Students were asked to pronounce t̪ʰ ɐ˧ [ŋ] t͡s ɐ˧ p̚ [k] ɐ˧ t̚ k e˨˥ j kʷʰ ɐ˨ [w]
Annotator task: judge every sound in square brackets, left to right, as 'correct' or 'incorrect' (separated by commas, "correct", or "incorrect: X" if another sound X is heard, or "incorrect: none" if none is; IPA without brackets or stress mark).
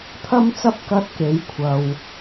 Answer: incorrect: m, correct, correct